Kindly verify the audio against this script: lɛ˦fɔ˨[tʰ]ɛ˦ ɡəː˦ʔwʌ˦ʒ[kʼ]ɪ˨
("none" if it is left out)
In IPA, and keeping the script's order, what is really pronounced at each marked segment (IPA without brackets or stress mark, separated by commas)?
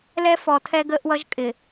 tʰ, kʼ